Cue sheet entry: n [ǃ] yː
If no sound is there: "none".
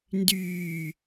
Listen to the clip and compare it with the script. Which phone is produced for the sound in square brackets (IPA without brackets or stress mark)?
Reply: d